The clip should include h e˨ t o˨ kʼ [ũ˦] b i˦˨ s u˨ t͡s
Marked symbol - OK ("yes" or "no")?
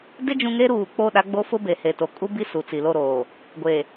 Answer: no